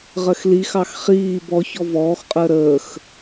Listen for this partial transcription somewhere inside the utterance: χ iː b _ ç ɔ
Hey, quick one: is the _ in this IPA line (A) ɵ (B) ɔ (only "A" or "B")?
B